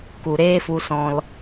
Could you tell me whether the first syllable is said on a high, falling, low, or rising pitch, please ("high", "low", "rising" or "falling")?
low